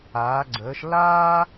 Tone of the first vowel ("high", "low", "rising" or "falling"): rising